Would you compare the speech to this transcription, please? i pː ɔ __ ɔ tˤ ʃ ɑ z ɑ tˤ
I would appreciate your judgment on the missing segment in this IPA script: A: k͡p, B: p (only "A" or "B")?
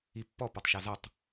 B